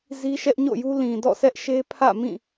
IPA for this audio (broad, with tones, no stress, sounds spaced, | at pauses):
z i˦ ʃ ɛ˦ ʔ ɲ o̰˦˨ j u˦ l ĩ˨ d ɔ̰˦˨ sʰ ɛ˦ ʔ ʃ e˦ pʰ ä̰˦˨ m ĩ˦˨